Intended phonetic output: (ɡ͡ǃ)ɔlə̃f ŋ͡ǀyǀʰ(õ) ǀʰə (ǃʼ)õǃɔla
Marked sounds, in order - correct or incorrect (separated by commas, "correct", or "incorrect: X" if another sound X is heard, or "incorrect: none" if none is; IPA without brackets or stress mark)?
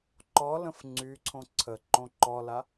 incorrect: ǃ, correct, incorrect: ǃ